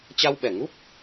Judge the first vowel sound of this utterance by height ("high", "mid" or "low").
low